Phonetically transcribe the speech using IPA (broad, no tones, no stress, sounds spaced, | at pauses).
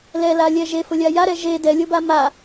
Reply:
l ɛ l a lʲ ɛ ʒ e f ʊ lʲ a j a ɾ ɛ ʒ e d ɛ lʲ ʊ b a m a